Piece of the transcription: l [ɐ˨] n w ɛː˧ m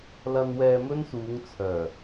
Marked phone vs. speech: incorrect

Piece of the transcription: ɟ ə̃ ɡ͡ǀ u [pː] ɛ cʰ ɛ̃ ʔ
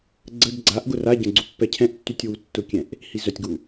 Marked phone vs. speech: correct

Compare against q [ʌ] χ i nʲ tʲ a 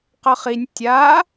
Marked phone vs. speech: correct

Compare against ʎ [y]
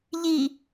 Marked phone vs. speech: incorrect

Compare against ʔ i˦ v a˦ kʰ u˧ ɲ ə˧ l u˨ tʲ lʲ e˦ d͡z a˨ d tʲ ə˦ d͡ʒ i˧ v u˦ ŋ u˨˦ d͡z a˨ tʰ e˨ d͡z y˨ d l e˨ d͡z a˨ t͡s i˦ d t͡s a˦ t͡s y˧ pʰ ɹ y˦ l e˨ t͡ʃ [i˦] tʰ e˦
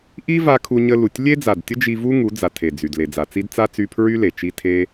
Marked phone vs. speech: correct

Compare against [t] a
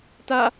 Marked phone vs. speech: correct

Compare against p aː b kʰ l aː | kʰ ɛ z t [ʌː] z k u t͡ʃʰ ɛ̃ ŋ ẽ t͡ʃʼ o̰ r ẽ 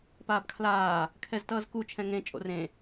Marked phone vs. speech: correct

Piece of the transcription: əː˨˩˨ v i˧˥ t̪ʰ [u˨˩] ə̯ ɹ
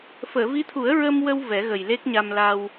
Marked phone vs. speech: incorrect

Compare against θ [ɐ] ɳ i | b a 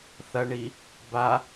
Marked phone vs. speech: correct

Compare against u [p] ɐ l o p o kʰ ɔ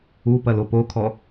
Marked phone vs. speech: correct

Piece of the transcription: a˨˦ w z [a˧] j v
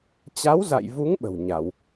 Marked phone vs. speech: incorrect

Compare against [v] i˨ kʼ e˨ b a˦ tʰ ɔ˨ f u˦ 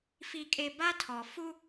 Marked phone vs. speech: incorrect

